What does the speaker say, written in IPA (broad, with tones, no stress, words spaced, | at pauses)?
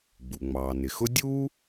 ɡ͡bu˩ ŋ͡mɑː˩nɪ˩xʊ˦ dʲuː˥